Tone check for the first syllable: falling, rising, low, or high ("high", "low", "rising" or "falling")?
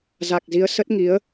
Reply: low